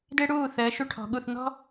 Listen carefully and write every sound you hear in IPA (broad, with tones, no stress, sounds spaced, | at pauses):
d ɪː˦ ɽ uː˦˨ θ əː˨˦ ʃ u˧ ʈʰ ɔ̤˨ ɠ u˦˨ θ n̪ ɔ̤˦